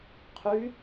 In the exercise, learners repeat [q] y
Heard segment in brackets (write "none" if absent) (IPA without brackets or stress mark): qʰ